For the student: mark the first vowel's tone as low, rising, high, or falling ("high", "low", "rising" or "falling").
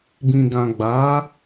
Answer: low